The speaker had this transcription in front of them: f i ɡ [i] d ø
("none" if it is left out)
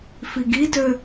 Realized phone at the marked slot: i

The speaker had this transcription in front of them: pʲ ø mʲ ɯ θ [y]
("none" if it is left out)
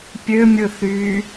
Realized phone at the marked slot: y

